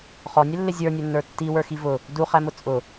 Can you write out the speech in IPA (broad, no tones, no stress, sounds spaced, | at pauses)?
χ ɔ nʲ ɛ lː ɪ zʲ ə˞ nʲ ə˞ nː ə˞ tː i w ə˞ x i v ʊ | d u χ æ m ʊ t͡sʼ ʊ